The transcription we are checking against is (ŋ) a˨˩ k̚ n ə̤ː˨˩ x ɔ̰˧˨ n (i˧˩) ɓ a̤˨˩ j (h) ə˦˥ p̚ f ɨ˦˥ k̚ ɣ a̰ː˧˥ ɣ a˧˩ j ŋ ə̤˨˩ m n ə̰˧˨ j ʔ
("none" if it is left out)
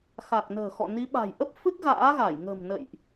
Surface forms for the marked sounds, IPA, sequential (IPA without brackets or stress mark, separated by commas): x, i˨˦, ʔ